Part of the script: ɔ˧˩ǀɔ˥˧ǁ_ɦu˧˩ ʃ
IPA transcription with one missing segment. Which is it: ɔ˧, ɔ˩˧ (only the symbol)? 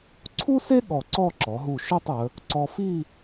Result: ɔ˩˧